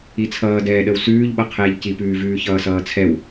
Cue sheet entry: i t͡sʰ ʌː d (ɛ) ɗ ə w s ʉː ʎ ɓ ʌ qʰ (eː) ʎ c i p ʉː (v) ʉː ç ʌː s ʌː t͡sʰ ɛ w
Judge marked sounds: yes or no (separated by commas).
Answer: no, yes, yes